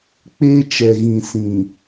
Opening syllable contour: high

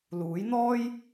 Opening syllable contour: rising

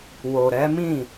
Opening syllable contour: low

